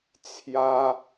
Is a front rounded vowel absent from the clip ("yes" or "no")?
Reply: yes